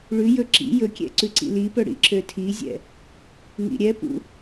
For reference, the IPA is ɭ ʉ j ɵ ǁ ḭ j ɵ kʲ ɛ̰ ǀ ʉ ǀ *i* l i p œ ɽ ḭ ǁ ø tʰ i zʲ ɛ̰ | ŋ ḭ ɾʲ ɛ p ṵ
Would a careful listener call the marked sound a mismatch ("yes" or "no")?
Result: yes